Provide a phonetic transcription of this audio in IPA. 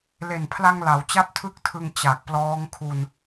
l e˨˩ n pʰ l a˧ ŋ l a˩˦ w t͡ɕ a˥˩ p̚ tʰ ɯ˥˩ k̚ tʰ ɯ˧ ŋ t͡ɕ a˨˩ k̚ p l ɔː˦˥ ŋ kʰ u˧ n

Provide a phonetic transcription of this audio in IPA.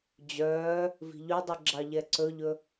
d͡ʑ œː | v i̤ ʎ y dˤ i ɡ͡ǁ ɑ ʎ ɛ ǀ ɵ ʎ ɵ

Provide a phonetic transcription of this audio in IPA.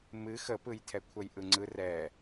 m ɨ x ə p ɯ j tʰ ɛ kʷʰ ə j ʔ ɯ ŋ͡ǀ ɯ r ɛ

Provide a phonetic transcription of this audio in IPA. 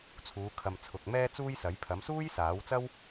t͡sʰ uː˨˧ kʰ ɐ˨ m t͡sʰ ʊ˨ k̚ m ɛː˧ t͡s uː˧ j s ɐ˨˥ j pʰ ɐ˨˥ m s uː˥ j s aː˨˥ w t͡s ɐ˥ w

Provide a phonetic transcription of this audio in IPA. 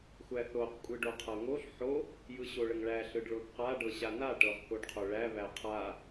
xʷ æ θ o q kʷʼ ɯ ɖ o qʰ ɤ ŋ o ɬ ħ o | j ɯ ɕ o ɭ ə ŋ ɭ æ ɬ ɯ ɖ ɭ o θ q a ɖ ɤ ɕ a n a ʈ ɤ ʁ k o ɖ qʰ o ɭ æ β æ qʰ a

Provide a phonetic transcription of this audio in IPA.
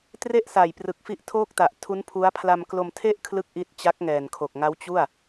t r e˥˩ ʔ s aː˨˩ j p r ɯ˨˩ k̚ f i˦˥ ʔ tʰ oː˥˩ k̚ t a˨˩ ʔ tʰ u˦˥ n pʰ u˦˥ a̯ pʰ l a˧ m k l o˧ m tʰ e˥˩ ʔ kʰ l ɯ˥˩ k̚ ʔ i˦˥ t̚ t͡ɕ a˦˥ k̚ ŋ ɛː˨˩ n kʰ o˨˩ k̚ ŋ a˦˥ w t͡ɕ u˥˩ a̯

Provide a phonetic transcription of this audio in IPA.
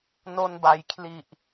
n o˧ n b a˩˦ j kʰ l i˨˩ ʔ

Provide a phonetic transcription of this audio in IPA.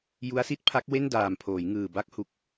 j u˦˥ a̯ s i˦˥ t̚ pʰ a˦˥ k̚ w e˥˩ n d aː˨˩ m pʰ oː˩˦ j ŋ ɯː˨˩ b a˦˥ k̚ h u˦˥ k̚

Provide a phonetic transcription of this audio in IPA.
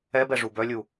ɛ b ɛ ʐ u b œ lʲ u

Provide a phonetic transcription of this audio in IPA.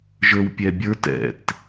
ʒ ə˞ w pʲ ɛ bʲ ə˞ t ɛ̰ t

